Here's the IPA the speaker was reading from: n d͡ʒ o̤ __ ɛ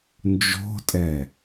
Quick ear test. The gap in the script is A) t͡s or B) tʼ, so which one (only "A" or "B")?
B